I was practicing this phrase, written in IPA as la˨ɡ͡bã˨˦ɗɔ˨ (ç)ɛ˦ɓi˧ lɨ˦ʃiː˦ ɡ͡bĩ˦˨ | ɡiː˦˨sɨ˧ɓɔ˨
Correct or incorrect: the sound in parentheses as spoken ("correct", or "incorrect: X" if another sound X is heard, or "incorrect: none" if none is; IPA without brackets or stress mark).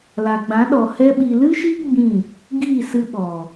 incorrect: h